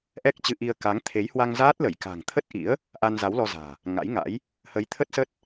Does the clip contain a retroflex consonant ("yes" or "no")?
no